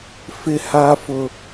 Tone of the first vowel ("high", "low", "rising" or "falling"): high